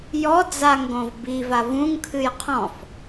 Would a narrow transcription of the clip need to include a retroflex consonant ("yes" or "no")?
no